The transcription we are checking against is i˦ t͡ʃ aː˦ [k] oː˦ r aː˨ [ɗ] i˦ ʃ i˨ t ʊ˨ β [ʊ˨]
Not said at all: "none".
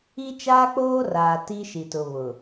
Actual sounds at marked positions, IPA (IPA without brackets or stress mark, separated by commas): k͡p, t, ʊ˨